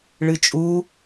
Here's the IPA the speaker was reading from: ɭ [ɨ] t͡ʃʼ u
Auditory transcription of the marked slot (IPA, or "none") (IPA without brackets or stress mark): ɨ